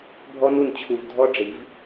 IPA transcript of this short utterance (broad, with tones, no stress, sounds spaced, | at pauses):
bʱ ɔ˧ n u˨ n t͡ɕʰ u˨ v dʱ ɔ˦ ɖ͡ʐ i˨˦ v